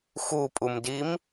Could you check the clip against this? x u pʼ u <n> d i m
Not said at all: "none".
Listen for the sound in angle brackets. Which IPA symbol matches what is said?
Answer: m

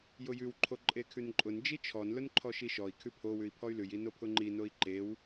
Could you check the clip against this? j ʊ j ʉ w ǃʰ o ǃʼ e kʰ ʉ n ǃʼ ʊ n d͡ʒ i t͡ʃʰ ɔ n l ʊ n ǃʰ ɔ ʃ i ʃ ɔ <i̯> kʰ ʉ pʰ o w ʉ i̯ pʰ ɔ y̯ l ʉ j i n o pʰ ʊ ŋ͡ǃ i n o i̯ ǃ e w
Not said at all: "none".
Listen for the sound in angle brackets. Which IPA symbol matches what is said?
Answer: i̯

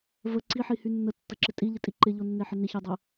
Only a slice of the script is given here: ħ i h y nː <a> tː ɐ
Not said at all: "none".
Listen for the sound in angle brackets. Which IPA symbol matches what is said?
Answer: ə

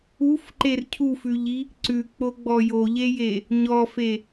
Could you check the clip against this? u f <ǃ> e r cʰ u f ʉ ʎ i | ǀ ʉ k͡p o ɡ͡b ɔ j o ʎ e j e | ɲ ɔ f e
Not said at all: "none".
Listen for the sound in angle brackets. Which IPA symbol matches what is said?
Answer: ǃ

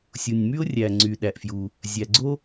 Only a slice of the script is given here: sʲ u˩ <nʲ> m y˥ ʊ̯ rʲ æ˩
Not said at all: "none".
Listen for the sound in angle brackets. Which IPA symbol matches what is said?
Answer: nʲ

